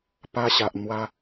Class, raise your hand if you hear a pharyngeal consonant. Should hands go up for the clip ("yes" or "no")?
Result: no